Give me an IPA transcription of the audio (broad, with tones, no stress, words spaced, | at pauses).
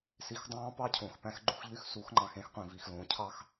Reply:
si˨xdˤɑ̃ː˦ pɑ˦cʰõ˨xpæ̃˦x ɡ͡ǃu˦xʎy˦x su˨˦xŋ͡ǃɑ̃˨xẽ˦x qʷĩ˨vi˨x lõː˨cʰɑ˦x